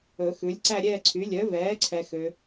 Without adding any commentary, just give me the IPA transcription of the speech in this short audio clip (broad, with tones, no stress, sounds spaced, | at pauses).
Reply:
ɵ˨˩˦ x ʉ˩˥ lʲ ǀ æ˦˨ ɾʲ ɛː˦˨ ǀʰ y˩˥ lʲ œ˩˥ v ɛː˩˥ ǀʰ ɛ˨ x ø˨